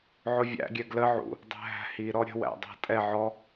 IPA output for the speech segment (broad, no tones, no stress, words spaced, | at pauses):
ʕʊvʲæ̰ɡʲɛ ɡlə ʕṵ | dˤæ̤ɦæ̤hi ɾɔɾʲə̤wæ̰ dˤæ̤tʼɛ ʕɔ